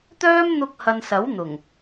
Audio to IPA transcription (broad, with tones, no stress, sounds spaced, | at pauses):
t̪ œː˥ m n̪ ʊ˧ k̚ h ɐ˨ n s ɐ˨˥ w n̪ ʊ˨˩ ŋ